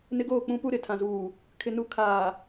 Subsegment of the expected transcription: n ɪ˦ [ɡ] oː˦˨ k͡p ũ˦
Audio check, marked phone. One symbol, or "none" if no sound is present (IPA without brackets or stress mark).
ɡ